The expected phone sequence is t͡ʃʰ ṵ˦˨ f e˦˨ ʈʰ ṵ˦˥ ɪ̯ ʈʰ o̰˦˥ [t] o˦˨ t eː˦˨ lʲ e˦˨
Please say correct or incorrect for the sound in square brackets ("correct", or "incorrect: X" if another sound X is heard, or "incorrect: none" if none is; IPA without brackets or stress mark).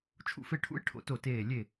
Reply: correct